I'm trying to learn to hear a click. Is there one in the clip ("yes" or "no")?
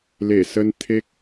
no